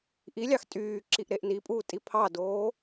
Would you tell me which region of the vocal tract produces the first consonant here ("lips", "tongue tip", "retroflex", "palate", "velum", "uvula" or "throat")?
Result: throat